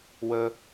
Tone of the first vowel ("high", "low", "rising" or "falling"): high